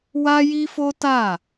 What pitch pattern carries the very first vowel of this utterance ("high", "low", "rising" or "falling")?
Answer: high